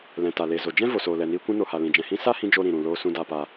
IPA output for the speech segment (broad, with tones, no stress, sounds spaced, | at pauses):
l ɛ̃˨ t a˨ l e˨ z o˨ d͡ʒ ɛ̃˦ v o˨ s oː˨ l ɛ˨ n iː˧ kʷ ũ˧ n o˨ h a˨ l ĩ˨ d͡ʒ ɛ̃˨ h ĩ˧ s a˦ h ĩ˧ d͡ʒ o˦ ɾ ĩ˨ ɾ ũ˨ l oː˧ s ũ˧ d a˨ p a˨